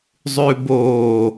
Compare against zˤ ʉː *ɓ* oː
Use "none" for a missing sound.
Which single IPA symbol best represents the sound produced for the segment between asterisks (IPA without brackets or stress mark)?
b